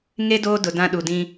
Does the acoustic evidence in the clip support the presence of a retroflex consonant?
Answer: no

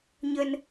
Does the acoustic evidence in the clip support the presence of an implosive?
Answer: no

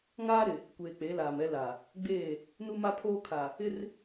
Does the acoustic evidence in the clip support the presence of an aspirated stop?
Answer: yes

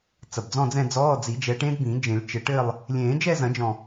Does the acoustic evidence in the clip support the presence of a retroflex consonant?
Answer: yes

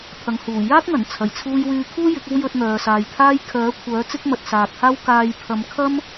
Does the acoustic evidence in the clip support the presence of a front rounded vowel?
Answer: yes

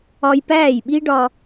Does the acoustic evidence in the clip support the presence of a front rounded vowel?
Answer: no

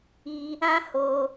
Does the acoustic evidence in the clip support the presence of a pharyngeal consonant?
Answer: no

